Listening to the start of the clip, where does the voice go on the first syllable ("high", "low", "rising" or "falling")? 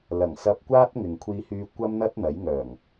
low